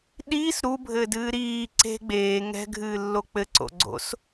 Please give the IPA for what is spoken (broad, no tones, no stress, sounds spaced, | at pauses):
ɗ iː s ɾ u bʱ ɘ d ɨː ɾ iː ǀ e̤ ɡ͡b eː ŋ ɛ̤ ɡʱ ɨː lː o k͡p ɘ ǀ o̰ ɡ͡ǀ o̰ s